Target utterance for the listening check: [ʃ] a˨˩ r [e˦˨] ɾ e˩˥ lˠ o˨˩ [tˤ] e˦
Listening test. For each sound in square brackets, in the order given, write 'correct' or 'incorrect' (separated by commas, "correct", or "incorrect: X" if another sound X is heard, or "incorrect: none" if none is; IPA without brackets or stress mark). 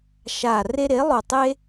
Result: correct, incorrect: e˦, correct